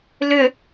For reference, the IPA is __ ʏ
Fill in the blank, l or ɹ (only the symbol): l